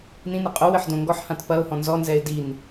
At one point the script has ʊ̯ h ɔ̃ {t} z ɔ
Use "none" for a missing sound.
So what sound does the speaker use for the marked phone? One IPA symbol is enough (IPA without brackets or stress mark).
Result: n